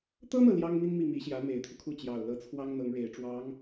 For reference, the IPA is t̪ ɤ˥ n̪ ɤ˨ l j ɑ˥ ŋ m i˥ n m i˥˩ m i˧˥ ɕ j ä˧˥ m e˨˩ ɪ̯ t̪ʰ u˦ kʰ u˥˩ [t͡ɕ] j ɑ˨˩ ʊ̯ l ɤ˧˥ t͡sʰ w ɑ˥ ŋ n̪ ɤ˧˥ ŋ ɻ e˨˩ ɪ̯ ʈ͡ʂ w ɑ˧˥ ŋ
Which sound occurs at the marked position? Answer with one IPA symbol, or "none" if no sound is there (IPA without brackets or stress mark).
t͡ɕ